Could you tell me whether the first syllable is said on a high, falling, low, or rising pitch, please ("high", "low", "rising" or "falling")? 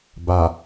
low